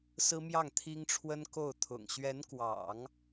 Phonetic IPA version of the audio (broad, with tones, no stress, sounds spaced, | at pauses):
s ɹ̩˥ m j ɑ˥˩ ŋ t̪ʰ i˥ ŋ ʈ͡ʂʰ w ə˥ n k o˥˩ ʊ̯ t̪ʰ ʊ̰˨˩ ŋ ɕ ɥ ɛ˧˥ n k w ɑ̰˨˩˦ ŋ